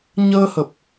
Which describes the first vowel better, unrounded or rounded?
unrounded